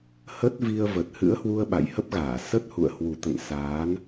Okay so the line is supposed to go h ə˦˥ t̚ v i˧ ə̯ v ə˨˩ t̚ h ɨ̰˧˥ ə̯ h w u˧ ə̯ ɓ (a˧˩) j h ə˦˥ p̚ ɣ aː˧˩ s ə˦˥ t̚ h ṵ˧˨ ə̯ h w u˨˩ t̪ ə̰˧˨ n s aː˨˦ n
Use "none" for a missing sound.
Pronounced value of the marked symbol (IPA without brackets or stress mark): a̰˧˨